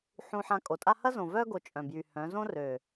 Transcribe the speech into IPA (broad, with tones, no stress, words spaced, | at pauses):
ħũ˧ħã˧kʼo˨tʼa˦ hɐ˦zõ˨vœ˦ ɡo˧t͡ʃʼœ̃˨bjy˨hœ̃˨˦ zõ˦rø˨